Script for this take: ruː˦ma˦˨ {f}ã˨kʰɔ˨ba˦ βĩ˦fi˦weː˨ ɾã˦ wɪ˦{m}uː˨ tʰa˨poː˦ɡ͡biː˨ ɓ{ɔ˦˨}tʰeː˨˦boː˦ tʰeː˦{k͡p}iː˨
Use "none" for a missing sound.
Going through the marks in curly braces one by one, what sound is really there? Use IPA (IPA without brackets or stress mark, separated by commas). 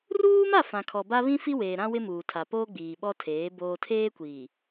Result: f, m, ɔ˦, kʷ